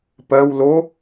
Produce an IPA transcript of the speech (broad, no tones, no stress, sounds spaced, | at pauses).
p ɜ w l o